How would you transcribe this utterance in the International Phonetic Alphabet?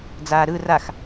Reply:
d͡z aː ɾ ɯ r a x

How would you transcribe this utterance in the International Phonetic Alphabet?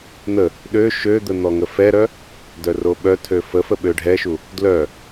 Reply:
n̪ ə | ɗ ø ʃ ø d̪ ə n̪ ɔ ŋ ə f ɛ ɾ œ | d œ r o ɓ œ tʰ ø f ə f ə ɓ ø ɖʱ ɛ ʃ u | d l œ

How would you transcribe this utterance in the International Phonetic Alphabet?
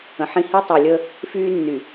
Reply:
ə̃˨ ħ ĩ˦ h i˦ tˤ u˨ lʲ ə˦ | f yː˦ nː y˨

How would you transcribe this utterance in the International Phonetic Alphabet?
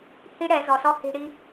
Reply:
h i˦ ɽ ɛ˨˦ z ɔ˨ s ɔ˦ h i̤˨ ɽ i˦

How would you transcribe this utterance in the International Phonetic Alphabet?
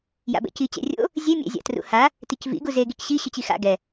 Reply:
j a̰ b ɛ̰ c i t͡ɕ ɛ̰ rʲ o̰ | zʲ e mʲ ɛ̰ zʲ a̰ t r ṵ h a | t i c v ḭ ɡ u z e ɡ i c ɕ i ɕ ʏ t͡ɕ i x a̰ ɡ ɛ

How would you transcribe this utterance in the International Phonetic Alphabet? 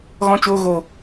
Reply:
ɣ ɔ̃˦ t͡ʃ oː˦ ɣ o˧

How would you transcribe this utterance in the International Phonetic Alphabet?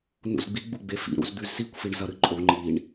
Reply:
n ṵ z ɡ͡b i ɡ͡b u ɡ͡b e f ḭ ɾ ṵ z d̪ ʉ z s i kʷ f i ɳ z ɐ ɾ ɨ ǃʼ o ŋ͡ǃ i ɳ

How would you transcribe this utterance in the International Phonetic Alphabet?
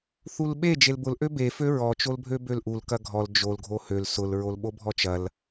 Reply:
θ u l ɓ e d͡ʒ e l b ʊ l ʔ ø b e f ø ɹ ɔ t͡ʃ o l bʱ ø b ø l ʔ u l k ɐ ɡʱ ɔ l d͡ʒ o l ɡʱ o h ø l s ʊ l ɹ o l ɓ o bʱ ɔ t͡ʃ ɐ l

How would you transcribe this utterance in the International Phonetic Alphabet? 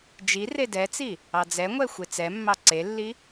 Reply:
d͡ʒ i r e d ɛ t͡s i | ɑ d͡z ɛ ŋʷ ɛ xʷ e t͡s ɛ mː ɑ ǀ e lː i

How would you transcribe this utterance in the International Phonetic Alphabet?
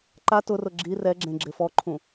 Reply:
ǃ a t ʊ r ʊ ɡ͡ǁ i r ɛ ɡ͡ǁ ẽ ɡ͡ǁ ɪ f ɔ ǃʰ ũ

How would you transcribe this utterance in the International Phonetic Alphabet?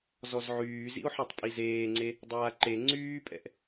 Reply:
z ɔ z ʕ yː z ḭ o̯ ħ ɔ tˤ pʼ i z eː ŋ͡ǀ e | dˤ aː ǃ e ŋ͡ǀ yː pʼ ɛ̰ ʔ

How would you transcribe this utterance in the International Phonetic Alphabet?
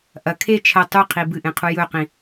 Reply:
ʔ ɐ kʰ e t͡ʃʰ ɐ tˤ ʉ qʰ i b ɨ ʔ ẽ qʰ u j ɵ q ĩ

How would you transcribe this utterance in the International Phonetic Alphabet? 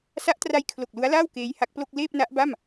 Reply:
s a˦˥ ʔ t r a˧ j kʰ l o˨˩ k̚ l u˦˥ a̯ l aː˥˩ w k eː˦˥ j h a˦˥ k̚ p l o˥˩ k̚ l eː˥˩ p̚ n a˦˥ ʔ b a˥˩ m

